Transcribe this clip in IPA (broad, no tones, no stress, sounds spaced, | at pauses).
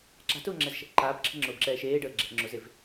ǁ a̤ t ʊː ŋ͡ǁ ɛ z ʃ ɛ̤ ʔ ǃ aː b ǁʰ ə̤ ŋ͡ǁ ʊː b ǁ ɛː ʃ eː ɖ əː ɡ͡ǁ ɛ̤ ʔ ŋ͡ǁ ʊ z e v